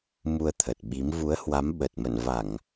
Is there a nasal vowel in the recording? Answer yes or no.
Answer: no